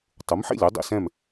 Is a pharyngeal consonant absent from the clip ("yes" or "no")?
no